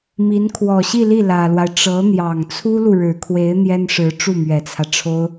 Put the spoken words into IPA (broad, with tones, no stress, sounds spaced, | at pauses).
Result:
m i˧˥ n kʰ w ɔ˨˩ ɕ i˥˧ l i˥˩ l ä˨˩ l w a˦ ɪ̯ ʈ͡ʂ ɤ˧˥ n̪ j ɑ˨˩ ŋ t͡sʰ u˥ l u˨ ɻ ɻ̩˨˩ kʰ w e˧˥ ɪ̯ n̪ j ɛ˥ n ʂ ɻ̩˧˥ ʈ͡ʂ u˥˩ m ɥ ɛ˨˩ t͡sʰ ä˦ ʈ͡ʂʰ o˥ ʊ̯